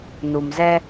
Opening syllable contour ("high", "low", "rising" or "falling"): low